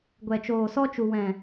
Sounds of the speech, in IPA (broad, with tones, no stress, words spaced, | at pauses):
ɡʷɛ˨t͡ʃoː˨sɔ˧t͡ʃu˨ wɛ̃˨